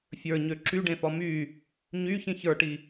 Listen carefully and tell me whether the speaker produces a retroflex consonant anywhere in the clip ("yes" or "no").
yes